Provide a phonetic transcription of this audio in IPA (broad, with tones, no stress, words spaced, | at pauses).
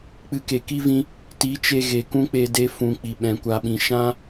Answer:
k͡pɨ˧ke˨ki˦vĩ˧ | ti˨˦t͡ʃe˧ ɣe˨kũ˦k͡pe˧ de˦fũ˧k͡pi˨ ɓɛ̃˨kʷa˨ɓĩ˨ ʃã˦